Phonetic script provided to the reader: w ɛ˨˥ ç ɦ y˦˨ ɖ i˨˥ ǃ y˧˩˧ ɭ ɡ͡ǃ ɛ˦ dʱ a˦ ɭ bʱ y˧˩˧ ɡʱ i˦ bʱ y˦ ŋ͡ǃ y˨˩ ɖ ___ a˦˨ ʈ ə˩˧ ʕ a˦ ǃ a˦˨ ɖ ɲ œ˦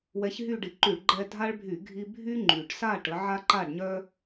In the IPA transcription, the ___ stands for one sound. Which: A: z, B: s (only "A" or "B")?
B